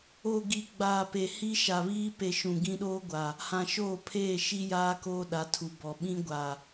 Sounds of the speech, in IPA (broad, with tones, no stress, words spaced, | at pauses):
o˨ ɡi˨ɡ͡baː˨pe˨ hi˦ ʃa˨βiː˦ pe˨ ʃũ˨ɡĩ˦ɗoː˦ɡʷa˨ | hã˨ʃoː˦˨pʰeː˦˨ʃi˦ jaː˦koː˦ɗa˨˦tʰu˨ bɔ˨ ɓĩ˦ɡʷa˨